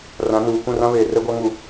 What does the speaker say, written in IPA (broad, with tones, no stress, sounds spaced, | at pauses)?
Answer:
r ã˨˦ n uː˨ k ũ˦˨ r ã˦ β eː˨ r ɛ˦ ɡʷ a˦ ŋ u˨